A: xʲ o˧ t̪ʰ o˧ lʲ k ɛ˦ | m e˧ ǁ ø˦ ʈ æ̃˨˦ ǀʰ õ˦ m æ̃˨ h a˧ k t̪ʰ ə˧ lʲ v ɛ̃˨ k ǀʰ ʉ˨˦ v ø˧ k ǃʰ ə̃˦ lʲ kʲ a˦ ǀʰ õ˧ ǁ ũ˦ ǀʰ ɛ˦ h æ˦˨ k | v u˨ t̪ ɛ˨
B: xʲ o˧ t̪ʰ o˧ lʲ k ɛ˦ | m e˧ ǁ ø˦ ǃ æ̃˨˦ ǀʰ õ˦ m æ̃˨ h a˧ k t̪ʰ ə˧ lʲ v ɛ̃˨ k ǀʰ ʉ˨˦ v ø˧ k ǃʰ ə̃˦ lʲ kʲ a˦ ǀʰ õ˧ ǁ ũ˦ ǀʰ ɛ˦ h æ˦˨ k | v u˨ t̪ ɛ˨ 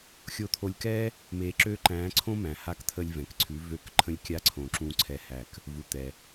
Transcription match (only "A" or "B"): B